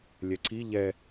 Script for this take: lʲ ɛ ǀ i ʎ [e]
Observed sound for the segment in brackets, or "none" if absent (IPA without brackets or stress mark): ɛ